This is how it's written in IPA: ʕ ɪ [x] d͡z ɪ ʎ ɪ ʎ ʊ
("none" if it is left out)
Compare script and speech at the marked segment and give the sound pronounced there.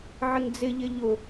ŋ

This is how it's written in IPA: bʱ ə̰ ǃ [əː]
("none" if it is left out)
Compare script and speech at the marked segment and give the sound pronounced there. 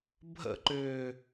ʏː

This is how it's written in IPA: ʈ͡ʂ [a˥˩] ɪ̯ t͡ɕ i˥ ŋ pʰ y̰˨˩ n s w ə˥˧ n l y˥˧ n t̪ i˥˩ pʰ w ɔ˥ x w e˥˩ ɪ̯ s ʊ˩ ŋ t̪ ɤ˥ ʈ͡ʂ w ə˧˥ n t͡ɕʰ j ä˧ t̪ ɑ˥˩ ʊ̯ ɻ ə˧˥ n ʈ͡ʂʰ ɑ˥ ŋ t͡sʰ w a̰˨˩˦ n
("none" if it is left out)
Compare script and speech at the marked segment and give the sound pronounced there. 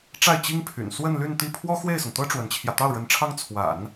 a˥˩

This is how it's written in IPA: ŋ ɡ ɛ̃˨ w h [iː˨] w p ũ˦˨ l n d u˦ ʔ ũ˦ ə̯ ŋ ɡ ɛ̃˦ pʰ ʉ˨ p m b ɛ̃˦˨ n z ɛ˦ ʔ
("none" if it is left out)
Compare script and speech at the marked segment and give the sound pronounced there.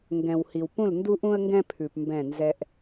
i˨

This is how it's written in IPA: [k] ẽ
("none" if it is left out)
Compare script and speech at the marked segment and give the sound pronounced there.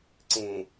ǀ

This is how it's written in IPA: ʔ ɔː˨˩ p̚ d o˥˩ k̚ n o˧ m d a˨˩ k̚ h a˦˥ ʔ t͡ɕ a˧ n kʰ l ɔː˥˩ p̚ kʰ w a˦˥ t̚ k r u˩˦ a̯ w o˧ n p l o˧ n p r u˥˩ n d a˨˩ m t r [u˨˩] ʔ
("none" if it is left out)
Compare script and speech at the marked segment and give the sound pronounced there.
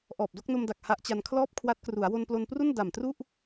u˥˩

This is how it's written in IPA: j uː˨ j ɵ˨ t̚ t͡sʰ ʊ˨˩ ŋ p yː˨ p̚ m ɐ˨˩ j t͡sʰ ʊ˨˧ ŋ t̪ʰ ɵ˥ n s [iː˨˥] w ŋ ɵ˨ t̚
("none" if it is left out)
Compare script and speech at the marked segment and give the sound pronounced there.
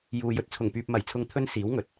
iː˨˥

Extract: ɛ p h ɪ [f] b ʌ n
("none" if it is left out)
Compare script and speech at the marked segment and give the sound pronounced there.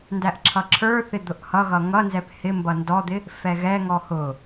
m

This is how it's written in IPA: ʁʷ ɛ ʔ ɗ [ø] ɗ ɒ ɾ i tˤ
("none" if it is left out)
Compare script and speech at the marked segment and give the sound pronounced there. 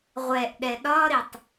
ɛ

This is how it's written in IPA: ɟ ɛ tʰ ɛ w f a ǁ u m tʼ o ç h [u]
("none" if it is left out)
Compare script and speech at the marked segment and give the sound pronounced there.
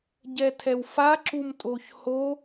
o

